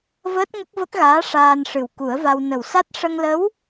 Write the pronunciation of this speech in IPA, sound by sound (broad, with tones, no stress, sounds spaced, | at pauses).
v əː˦˥ t̚ ŋ ə˦˥ k̚ v ə˦˥ k̚ ɣ aː˧˥ ʂ aː˧ n ʂ ɨ˨˩ w k u˨˩˦ ə̯ v a˧ w n ə˨˩ w s a˦˥ t̚ ʂ ə˧ ŋ l ə˧˥ w